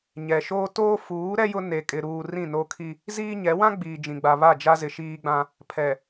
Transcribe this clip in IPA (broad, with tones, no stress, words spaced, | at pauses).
ɲɛ˨ʃoː˦ toː˦fuː˨˦ɾɛ˦ jʊ˦ ne˨kʼɪ˨ ɾuː˨ rĩ˦˨no˦kʰi˦ | ziː˦ɲɛ˨˦ wã˦ ɡ͡biː˨d͡ʒĩ˨ɡ͡ba˨ βa˦˨d͡ʒa˦zɪ˨ ʃiː˦ɡ͡bã˦ | pʰɛ˨